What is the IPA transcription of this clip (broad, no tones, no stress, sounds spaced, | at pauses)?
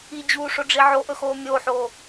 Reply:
i d͡ʑ uː ʂ o ɖ͡ʐ i ʕ o ʔ ɵ x oː mʲ oː ħ oː